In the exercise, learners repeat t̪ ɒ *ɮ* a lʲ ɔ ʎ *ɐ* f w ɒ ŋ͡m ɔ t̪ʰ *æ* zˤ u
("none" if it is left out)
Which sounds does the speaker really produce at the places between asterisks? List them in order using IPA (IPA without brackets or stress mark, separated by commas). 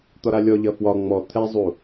ɾ, ɐ, ɛ